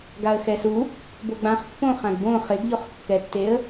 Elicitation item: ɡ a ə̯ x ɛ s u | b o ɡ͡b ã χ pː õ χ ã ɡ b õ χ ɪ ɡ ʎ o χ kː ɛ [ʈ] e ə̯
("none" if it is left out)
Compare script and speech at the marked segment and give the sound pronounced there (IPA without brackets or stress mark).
tː